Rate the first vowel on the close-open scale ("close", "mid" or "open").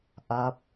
open